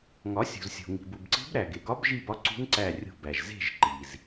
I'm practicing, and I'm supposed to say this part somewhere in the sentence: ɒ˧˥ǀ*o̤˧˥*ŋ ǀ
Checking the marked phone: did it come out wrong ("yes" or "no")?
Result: yes